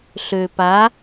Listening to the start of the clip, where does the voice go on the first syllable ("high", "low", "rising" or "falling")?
low